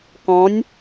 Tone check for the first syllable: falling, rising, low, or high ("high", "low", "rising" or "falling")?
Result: rising